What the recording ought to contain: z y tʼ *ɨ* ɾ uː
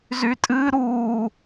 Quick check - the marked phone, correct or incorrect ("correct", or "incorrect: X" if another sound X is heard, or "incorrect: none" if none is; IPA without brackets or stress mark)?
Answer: correct